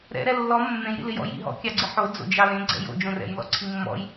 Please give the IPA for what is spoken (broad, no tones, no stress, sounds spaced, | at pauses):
ɾ ɛ̰ ɾ ɛ lː ɔ mː ẽ j ɾ ḭ l ɪ j ɔ̰ j ḭ ɦ ɔ̰ kʲ ɑ ɡ͡ǀ ɪ ħ o d͡z o̰ d͡ʒ ɑ l ẽ ɡ͡ǀ ɛ̰ j o̰ d͡ʒ õ r ɛ̰ j l ɔ̰ ǀʰ i mː ɔ̰ j